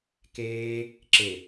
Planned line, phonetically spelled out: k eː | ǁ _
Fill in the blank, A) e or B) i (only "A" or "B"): A